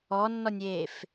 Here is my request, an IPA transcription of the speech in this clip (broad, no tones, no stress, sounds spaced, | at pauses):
ɔ nː ɔ nʲ eː f